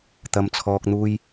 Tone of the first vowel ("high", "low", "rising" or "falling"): low